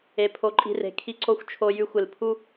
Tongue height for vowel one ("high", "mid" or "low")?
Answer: mid